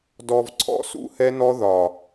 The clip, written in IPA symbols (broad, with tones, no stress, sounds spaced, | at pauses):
d ɔ˨ v ǀʰ ɔ̰˦ s ṵ˦ h ɛ˦ n ɔ˦ ð ɒ˨